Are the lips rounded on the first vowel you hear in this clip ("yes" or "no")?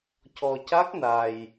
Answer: yes